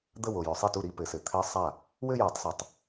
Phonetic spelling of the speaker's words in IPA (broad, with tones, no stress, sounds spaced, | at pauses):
d̪ ə˥˧ w o˨ j ʏ˨˩˦ sˤ i˥˩ t u˥˩ ɾ i˥˧ p ɘ˨˩˦ s ɘ˨ t̪ʰ ɘ˧˥ sˤ a˥˩ | w ɘ˥˧ j a˨˩˦ tˤ s a˨ tˤ